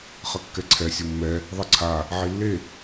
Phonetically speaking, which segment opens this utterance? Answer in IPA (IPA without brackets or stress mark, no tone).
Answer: χ